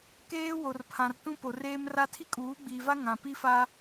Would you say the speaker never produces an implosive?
yes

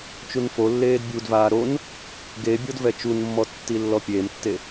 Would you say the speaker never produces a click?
yes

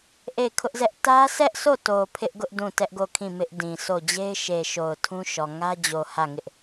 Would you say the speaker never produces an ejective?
yes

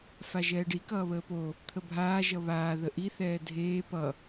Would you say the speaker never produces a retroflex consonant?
no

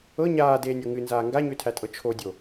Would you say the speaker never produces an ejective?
no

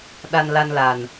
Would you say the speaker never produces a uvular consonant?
yes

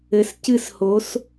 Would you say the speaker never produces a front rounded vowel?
yes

